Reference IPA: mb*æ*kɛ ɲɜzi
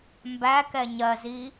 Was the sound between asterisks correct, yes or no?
yes